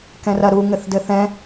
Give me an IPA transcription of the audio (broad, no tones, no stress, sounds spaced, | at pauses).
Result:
k ɛ̃ r ɐ ɾ u ŋ ɘ θ d ɘ θ ɛ̃